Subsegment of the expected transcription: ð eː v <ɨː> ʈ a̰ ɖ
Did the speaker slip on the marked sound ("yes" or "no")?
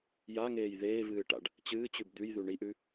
no